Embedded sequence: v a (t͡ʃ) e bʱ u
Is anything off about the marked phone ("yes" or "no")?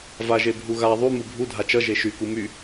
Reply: yes